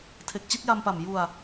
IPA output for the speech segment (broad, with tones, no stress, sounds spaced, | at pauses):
tʰ e˨˩ k̚ t͡ɕ i˥˩ t̚ j a˧ m p a˨˩ m j u˧ a̯